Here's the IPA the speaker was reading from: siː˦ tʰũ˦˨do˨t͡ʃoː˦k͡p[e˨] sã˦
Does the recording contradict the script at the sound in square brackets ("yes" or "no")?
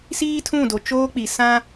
yes